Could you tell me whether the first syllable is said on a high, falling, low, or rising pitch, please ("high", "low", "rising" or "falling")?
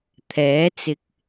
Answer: rising